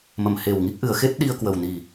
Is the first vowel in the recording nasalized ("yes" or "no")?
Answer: no